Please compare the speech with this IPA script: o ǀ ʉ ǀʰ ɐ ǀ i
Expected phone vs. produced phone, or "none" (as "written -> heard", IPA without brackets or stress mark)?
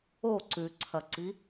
none